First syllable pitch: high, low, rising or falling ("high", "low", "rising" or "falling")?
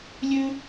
high